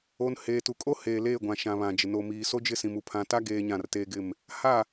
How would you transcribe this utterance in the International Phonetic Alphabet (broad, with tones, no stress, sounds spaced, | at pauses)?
o˨ n h eː˨ t u˨ kʼ o˦ h eː˨ l eː˦˨ ɡʷ ã˨ ʃ ã˨ β ã˨ d͡ʒ ɪ˨ n o˨ m i˨ s o˦ d͡ʒ ɪ˦˨ s ĩ˨ m u˨ pʰ ã˨ t a˦ ɡ eː˦ ɲ ã˦˨ r t eː˦ ɡ ɪ˦˨ m | h a˦˨